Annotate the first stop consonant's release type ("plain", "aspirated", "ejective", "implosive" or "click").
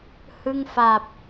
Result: plain